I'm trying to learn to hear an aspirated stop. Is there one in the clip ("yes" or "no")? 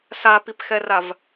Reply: no